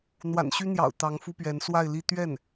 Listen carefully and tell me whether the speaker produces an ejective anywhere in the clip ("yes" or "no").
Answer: no